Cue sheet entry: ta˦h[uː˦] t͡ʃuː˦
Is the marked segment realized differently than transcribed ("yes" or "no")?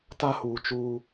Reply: yes